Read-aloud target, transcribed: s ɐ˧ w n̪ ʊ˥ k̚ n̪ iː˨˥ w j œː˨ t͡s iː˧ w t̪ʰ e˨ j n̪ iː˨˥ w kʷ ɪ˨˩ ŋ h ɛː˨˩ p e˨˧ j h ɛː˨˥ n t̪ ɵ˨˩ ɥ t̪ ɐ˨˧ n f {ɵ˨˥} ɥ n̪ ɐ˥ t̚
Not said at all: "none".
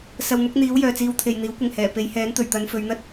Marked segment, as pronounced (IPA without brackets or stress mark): ɵ˨˧